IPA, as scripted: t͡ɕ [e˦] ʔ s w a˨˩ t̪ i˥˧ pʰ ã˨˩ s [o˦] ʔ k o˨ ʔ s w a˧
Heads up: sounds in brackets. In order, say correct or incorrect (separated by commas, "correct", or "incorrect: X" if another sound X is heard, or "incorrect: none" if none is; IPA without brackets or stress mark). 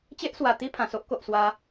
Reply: correct, correct